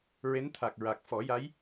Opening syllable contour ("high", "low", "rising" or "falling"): rising